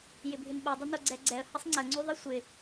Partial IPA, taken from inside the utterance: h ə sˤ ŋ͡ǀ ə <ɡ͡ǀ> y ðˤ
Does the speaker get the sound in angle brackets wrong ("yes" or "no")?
yes